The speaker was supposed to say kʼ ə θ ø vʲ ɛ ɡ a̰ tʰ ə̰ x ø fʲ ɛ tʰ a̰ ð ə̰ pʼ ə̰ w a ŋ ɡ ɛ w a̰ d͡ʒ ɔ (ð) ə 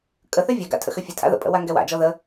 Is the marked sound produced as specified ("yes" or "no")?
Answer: yes